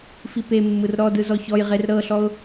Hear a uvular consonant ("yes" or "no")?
yes